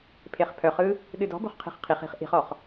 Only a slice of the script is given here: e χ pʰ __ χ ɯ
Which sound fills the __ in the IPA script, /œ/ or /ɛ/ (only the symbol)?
œ